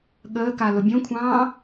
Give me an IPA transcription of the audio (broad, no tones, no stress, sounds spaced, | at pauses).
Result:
ɠ əː k a l ʊ bʲ õ kʷʰ ɑ̃ː